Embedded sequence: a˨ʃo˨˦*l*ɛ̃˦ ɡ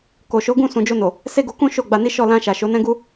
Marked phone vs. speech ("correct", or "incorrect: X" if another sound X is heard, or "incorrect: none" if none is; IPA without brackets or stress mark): incorrect: n